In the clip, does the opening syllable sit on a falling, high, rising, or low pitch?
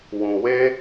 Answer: low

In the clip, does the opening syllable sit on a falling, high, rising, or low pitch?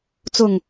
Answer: low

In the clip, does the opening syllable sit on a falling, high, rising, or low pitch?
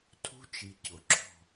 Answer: high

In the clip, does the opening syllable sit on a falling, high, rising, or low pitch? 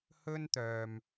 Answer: high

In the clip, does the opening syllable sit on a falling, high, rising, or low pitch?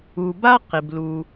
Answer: low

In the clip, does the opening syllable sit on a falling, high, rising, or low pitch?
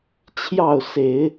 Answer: falling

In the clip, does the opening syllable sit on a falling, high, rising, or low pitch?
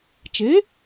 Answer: rising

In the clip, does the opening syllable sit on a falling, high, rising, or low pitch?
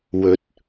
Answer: rising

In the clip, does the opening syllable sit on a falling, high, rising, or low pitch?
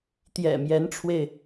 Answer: low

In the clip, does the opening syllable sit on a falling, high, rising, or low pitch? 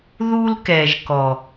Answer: high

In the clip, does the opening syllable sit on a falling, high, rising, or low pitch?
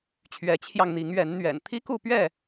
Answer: rising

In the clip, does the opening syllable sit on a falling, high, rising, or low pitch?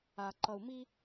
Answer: low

